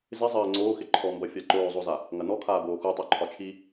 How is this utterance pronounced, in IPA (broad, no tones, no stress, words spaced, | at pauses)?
zɪ zˤɐː ŋ͡ǀoːxɪ ǃʰɔmbɐfʲa ǃoːzˤoza | ŋɐnɔkʰaːboː xutˤœ ǃʰɒt͡ʃʰi